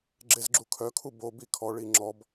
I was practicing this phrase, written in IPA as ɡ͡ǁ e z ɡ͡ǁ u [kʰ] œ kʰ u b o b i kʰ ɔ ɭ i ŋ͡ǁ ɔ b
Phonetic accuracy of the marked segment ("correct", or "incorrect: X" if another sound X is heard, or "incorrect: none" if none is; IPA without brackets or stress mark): correct